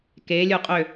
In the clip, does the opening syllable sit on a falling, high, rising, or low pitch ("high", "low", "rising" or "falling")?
rising